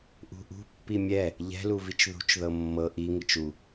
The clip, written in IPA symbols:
ʔ ṳ ʔ ṳ pː i mʲ ɛ | ʎ ɛ̤ l u v i t͡ʃ ð ṳ t͡ʃ ð ɤ mː ɤ ʔ i ŋ i t͡ʃ u

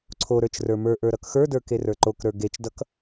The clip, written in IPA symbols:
ǀʰ o ɾ ə˞ t͡ʃ r ə˞ m ə˞ ʔ ə˞ ɾ ʌ k x ə˞ d ə˞ k e r ə˞ ǃ o k ɾ ə˞ ɡ e t͡ʃ d ʌ k

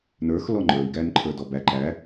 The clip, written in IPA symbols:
n ə˞ x l ɔ ŋ͡ǃ ə˞ i̯ ɡ æ n ǃʰ ə˞ d ɔ b æ ǃ æ

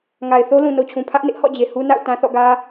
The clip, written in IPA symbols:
ŋ a˨ ɪ̯ θ o˦ l ũ˨ n o˨ t͡ɕʰ ũ˨ pʰ ä˦ ʔ n ɪ˦ ʔ h ɔ̰˦˨ d͡ʑ e˨ h u˦ n a̰˦˨ ʊ̯ t ã˦ θ ɔ̰˦˨ ɡ ä˦

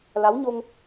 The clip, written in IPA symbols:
l a˨˦ w ɲ o˧ ŋ

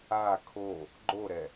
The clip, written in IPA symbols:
a kʰ o | ɡ͡ǃ o ɾ ɛ

